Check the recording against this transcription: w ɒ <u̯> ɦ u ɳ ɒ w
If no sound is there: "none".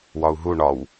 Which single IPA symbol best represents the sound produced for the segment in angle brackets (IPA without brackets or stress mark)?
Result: u̯